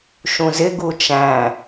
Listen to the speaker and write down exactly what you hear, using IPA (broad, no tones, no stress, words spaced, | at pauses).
ʃũzɪɡu t͡ʃæ̃